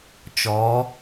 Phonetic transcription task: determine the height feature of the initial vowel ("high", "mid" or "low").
mid